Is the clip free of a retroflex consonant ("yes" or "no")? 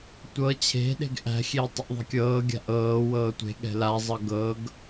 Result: yes